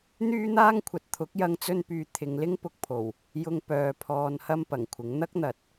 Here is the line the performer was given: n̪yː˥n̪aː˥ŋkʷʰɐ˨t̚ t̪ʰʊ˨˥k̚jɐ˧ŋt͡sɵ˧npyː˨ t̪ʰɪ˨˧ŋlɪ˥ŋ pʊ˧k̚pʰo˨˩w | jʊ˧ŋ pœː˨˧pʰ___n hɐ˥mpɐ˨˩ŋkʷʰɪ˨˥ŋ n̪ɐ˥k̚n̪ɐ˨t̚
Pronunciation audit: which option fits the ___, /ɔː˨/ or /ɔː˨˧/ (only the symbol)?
ɔː˨